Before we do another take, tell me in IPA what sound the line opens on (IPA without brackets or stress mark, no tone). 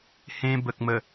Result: h